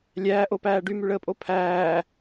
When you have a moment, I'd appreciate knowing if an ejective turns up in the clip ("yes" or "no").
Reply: yes